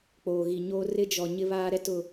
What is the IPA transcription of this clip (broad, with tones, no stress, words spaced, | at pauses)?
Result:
k͡poː˨ɣi˨ɲoː˦ rɪ˦d͡ʒɔ˨ ɲɪ˦βaː˦ɾɛ˦ tʊ˦˨